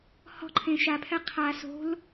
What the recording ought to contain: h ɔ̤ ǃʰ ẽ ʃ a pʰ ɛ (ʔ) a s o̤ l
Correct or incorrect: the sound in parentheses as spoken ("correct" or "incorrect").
incorrect